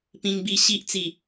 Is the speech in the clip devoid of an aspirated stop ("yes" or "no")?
yes